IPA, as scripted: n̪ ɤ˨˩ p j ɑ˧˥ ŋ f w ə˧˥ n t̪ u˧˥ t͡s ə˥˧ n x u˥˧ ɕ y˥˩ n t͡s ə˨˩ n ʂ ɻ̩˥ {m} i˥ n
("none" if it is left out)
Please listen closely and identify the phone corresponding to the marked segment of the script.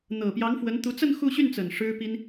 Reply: p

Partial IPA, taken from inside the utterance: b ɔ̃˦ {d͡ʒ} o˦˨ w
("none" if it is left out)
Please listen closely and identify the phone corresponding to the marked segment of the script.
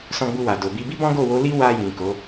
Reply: ɡ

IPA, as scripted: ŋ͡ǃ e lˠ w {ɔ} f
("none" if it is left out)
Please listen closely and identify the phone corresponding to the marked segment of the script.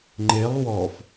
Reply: ɔ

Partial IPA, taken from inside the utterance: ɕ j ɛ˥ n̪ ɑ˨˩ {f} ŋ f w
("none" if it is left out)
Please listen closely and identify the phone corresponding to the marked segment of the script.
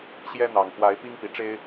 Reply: none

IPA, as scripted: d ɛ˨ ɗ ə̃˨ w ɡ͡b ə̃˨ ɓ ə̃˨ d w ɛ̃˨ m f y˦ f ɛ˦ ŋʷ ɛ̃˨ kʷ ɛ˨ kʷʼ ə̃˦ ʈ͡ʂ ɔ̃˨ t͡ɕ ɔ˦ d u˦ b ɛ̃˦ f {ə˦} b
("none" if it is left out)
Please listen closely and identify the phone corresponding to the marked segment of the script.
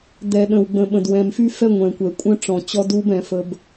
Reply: ə˦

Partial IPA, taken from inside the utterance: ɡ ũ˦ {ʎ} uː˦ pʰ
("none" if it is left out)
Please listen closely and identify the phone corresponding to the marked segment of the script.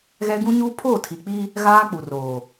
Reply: ɲ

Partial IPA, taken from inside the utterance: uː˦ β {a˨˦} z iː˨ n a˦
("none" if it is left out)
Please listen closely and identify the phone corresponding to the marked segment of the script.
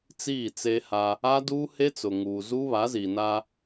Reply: a˨˦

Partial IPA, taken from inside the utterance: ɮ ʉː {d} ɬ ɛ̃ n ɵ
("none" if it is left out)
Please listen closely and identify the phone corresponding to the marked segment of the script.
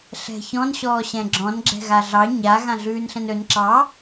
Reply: n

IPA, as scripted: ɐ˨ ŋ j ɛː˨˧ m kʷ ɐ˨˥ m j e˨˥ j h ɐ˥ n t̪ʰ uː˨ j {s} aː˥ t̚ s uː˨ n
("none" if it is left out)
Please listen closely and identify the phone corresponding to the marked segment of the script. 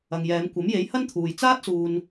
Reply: t͡s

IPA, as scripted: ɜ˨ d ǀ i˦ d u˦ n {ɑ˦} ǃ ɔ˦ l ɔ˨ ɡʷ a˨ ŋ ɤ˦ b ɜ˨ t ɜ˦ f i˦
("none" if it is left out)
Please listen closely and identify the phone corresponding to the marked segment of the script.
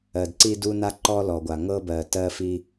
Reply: a˦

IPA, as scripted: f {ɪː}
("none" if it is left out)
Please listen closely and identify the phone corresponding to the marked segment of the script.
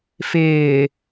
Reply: ɪː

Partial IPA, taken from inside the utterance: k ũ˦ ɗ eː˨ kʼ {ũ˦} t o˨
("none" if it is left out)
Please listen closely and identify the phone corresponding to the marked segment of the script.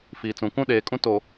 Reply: ũ˦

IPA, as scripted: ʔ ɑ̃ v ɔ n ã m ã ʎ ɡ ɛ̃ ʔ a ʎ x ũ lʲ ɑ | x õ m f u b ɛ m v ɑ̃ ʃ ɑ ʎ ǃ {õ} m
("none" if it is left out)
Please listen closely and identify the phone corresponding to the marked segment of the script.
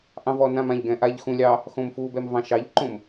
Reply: õ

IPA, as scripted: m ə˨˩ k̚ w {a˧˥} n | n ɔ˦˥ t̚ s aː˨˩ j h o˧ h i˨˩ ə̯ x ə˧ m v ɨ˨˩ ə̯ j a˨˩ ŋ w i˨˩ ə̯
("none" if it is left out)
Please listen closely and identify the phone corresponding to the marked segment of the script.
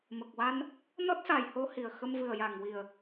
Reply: a˧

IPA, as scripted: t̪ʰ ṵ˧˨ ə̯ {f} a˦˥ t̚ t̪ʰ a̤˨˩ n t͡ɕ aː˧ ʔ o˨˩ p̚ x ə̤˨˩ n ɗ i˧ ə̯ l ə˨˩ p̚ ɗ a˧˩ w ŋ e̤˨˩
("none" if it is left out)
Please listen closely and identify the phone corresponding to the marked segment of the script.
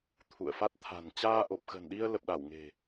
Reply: f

